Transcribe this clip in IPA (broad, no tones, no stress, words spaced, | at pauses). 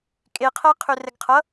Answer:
kʼeqʰæ qʰørɛɡqʰʌ